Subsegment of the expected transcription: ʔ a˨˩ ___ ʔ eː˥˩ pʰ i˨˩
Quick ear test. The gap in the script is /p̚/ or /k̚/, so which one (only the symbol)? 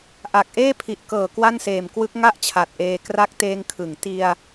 k̚